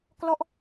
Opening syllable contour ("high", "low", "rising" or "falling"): falling